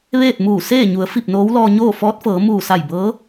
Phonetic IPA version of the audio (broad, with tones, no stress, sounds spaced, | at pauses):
ʋ eː˥˨ t̚ m uː˧˩ s eː˥˨ ɲ u˩˧ ə̯ f i˧˩ p̚ n oː˧˥ w l ɔː˧ ɲ oː˥˨ f ɔː˧˥ t̚ f ɤː˩˧ m uː˧˩ s a˧˩ j b ɤː˧˥